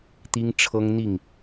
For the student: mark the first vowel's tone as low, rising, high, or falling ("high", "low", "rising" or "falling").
high